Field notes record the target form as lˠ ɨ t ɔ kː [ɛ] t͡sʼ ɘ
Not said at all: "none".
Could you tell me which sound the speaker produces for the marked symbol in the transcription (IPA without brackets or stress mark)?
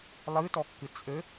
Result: ɨ